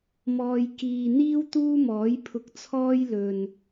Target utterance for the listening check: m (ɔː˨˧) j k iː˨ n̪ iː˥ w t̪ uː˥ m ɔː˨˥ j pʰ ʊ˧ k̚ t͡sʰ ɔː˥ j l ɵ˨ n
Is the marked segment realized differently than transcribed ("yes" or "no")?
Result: yes